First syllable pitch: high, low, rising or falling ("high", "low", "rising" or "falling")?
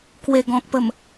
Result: low